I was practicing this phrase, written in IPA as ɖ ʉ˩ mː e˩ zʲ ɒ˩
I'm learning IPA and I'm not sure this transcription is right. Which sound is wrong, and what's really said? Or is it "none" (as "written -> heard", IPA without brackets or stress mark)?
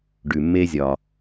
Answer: e˩ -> e˧